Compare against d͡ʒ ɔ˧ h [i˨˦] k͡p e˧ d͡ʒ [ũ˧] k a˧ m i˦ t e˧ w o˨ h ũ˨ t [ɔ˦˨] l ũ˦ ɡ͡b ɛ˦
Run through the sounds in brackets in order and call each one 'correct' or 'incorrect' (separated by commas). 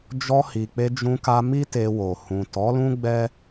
incorrect, correct, incorrect